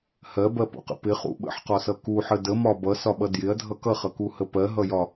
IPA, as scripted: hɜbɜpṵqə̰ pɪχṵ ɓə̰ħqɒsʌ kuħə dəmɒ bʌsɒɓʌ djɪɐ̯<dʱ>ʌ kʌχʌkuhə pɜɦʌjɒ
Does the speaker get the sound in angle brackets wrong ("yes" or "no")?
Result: no